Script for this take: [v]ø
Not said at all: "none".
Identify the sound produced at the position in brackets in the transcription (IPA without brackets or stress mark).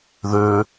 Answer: ð